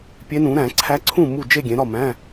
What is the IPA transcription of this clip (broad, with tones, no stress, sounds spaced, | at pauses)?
pʲ e˧˥ n ũ˩˥ ɾ æ̃˨˩˦ ǀʰ æ˧˥ ǀʰ ũ˥˩ m u˥˩ d͡ʒ e˥˩ ɡʲ ẽ˩˥ ɾ ɒ˥˩ m æ̃˧˥˧